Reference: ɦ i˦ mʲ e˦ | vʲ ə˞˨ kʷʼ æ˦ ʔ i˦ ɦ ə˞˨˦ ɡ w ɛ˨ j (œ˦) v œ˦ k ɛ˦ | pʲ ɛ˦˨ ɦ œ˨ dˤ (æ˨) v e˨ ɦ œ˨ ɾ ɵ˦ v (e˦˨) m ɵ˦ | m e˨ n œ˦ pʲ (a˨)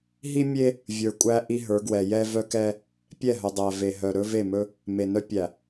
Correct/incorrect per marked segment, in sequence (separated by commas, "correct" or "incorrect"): incorrect, correct, correct, incorrect